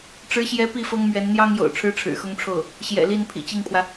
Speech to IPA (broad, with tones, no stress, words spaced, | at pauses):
ʈ͡ʂɻ̩˧˥ɕjɛ˧˥ pi˥˩fɤ˥ŋmɥɛ˧˥n n̪jɑ˥ŋjo̰˨˩ʊ̯ ʈ͡ʂʰɻ̩˥ʈ͡ʂʰɻ̩˨˩xʊ˥ŋʈ͡ʂʰo˥˩ʊ̯ | ɕjɛ̰˨˩li˥˩n pʰḭ˨˩t͡ɕi˥˩ŋpʰwä˩